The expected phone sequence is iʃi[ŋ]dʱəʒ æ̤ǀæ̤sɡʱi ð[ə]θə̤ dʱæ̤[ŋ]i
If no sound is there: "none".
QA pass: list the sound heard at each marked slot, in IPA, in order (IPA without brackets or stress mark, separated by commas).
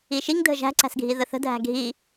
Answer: ŋ, ə, ɡʱ